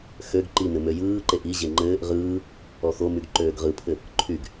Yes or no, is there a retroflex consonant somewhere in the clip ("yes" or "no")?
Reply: no